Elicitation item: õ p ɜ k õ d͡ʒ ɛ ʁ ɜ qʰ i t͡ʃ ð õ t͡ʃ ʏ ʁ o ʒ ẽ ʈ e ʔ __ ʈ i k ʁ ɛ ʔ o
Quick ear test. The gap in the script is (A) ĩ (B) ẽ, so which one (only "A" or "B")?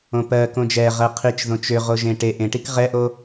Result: B